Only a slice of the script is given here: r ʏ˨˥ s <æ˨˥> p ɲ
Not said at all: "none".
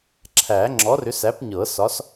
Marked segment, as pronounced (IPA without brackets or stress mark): æ˨˥